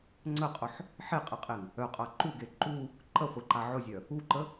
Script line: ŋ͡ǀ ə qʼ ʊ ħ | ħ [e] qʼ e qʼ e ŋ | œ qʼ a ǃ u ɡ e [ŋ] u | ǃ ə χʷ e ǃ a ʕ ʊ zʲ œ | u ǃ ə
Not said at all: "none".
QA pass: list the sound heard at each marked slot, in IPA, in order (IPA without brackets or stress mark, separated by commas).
e, ǃ